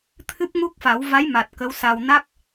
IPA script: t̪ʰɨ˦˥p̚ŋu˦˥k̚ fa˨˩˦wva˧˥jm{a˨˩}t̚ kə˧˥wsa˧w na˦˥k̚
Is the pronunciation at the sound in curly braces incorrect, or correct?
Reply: correct